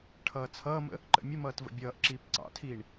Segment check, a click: present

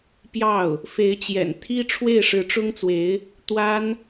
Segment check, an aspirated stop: present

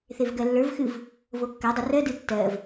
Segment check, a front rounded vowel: absent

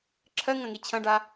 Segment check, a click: present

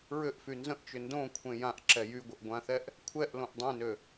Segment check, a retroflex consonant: absent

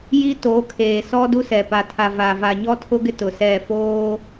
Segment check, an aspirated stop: present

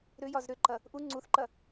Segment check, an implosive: absent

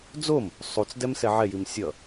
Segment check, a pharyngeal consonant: present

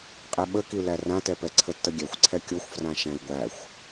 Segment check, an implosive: present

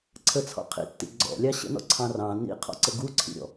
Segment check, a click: present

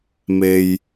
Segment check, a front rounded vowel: absent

